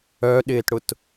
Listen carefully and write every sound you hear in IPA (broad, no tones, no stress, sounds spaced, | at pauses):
œ ɗ ɪː t ɽ ʊ t